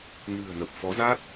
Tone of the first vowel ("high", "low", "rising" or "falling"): low